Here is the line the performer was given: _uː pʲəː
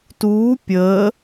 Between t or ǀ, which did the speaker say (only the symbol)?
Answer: t